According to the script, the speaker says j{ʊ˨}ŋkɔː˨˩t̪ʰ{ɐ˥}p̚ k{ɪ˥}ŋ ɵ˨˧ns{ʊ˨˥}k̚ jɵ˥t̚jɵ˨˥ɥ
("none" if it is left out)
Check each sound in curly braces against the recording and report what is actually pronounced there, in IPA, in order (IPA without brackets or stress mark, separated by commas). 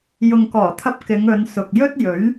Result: ʊ˨, ɐ˧, ɪ˨˧, ʊ˨